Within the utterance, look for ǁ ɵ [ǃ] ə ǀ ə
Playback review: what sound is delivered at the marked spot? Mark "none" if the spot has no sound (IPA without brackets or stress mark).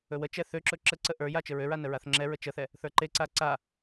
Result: ǁ